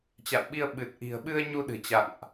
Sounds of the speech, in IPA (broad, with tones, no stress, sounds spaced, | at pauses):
t͡ɕ a̰˧˨ w ɓ i˧ ə̯ ɓ ɨ˨˩ t̚ ʔ i̤˨˩ ə̯ ɓ ɨ˧ ə̯ ɲ u˧ ɗ ɨ̤˨˩ t͡ɕ a̰˧˨ ŋ ʔ